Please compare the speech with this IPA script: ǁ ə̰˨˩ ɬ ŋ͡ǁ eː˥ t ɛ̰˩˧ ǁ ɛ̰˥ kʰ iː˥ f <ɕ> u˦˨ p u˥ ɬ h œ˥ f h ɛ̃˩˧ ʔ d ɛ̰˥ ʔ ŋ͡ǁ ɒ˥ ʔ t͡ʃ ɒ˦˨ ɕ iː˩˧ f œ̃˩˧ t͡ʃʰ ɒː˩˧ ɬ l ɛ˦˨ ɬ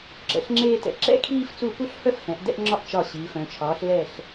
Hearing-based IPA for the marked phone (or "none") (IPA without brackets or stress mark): t͡s